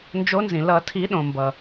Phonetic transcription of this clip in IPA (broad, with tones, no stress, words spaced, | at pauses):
nd͡ʒo˨˦nzĩ˩lʌ˨˩˦ tʰi˨˩˦ ɗõ˩mbʌ˩